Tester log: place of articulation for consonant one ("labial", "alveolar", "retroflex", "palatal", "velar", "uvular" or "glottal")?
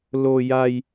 alveolar